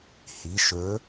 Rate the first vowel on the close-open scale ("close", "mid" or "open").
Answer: close